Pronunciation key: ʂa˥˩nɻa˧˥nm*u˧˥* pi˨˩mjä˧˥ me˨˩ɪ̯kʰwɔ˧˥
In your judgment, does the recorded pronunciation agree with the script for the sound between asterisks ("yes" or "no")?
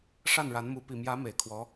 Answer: yes